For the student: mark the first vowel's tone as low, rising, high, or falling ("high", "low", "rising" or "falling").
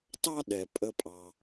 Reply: high